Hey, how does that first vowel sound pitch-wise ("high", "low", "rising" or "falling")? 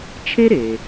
high